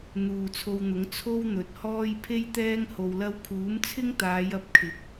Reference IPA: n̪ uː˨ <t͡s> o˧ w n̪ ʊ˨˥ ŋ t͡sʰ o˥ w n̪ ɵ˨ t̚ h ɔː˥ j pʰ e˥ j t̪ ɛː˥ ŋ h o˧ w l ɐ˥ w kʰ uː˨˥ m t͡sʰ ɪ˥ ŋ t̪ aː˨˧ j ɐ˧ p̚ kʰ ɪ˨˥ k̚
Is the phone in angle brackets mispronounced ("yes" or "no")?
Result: yes